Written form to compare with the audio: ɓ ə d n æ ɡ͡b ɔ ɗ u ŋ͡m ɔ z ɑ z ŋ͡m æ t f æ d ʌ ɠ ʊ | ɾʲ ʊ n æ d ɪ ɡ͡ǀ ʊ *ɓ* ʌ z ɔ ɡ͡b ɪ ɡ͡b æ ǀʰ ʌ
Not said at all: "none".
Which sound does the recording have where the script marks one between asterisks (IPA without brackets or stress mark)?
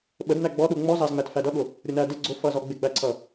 f